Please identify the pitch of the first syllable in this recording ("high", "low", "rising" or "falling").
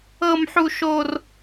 high